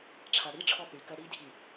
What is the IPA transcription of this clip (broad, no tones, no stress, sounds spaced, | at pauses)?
ʈ͡ʂʰ a ɽ i ʈ͡ʂʰ ɔ θ y k ɜ ɽ i dʱ i